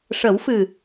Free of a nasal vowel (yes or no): yes